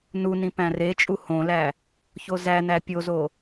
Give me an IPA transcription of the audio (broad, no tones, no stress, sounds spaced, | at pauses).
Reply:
n u n ĩ p æ̃ r e t͡ʃʼ u h õ l æ | ç o z æ n æ pʲ o z o